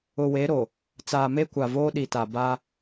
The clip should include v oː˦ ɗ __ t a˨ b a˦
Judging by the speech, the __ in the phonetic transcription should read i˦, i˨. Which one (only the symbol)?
i˨